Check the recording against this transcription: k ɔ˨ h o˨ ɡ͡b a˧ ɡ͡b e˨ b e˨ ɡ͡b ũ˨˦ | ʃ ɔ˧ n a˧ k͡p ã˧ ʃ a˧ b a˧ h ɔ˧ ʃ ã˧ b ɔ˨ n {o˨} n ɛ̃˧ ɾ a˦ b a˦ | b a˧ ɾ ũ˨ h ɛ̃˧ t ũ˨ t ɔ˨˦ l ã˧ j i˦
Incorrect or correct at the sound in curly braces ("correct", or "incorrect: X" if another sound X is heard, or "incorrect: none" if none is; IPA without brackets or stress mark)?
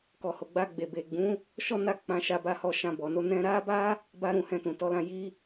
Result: incorrect: o˧